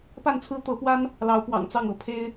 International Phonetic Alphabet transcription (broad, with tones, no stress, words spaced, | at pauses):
pa˥˩nt͡sʰɹ̩˥t̪ɤ˧˥pwa˥n | lɑ˧˥ʊ̯pwɑ̰˨˩ŋt͡sɑ˥˩ŋɤ˧˥ pʰe˥ɪ̯